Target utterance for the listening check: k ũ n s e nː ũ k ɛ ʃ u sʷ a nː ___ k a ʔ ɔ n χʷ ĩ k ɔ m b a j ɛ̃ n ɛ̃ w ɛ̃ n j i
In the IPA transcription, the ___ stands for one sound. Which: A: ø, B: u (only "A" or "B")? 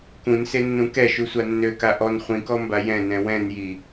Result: A